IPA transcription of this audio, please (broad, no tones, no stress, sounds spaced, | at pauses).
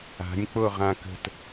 a̤ nʲ k͡p o ʁ ã k ə̤ t